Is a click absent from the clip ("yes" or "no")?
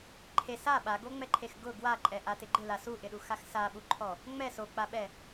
no